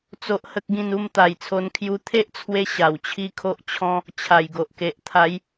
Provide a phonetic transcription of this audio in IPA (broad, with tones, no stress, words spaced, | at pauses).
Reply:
t͡so˦ʔhə˦k̚ɡĩ˥˧n u˥˧mt̪a˨˩jt͡sʰo˧nkʰju˧ t̪ʰe˦ʔt͡sʰwe˧ ɕa˨˩wt͡ɕʰi˦kʰo˦ʔt͡ɕʰɔ̃˦ | t͡ɕʰa˨˩jɡo˨ʔke˨ʔ t̪ʰa˨˦j